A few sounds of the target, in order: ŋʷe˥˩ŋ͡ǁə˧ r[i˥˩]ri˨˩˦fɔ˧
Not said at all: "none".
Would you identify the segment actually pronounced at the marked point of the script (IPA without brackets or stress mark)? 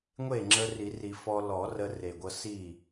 i˨˩˦